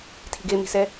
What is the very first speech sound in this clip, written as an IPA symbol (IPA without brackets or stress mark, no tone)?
tʰ